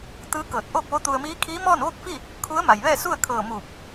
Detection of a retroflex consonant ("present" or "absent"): absent